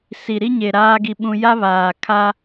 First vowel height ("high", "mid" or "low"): high